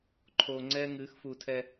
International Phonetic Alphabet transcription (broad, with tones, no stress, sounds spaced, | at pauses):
ǃʰ oː˨ ŋ͡ǀ ɛː˦ ŋ ɨː˨˦ x f uː˨ tʰ ɛ˦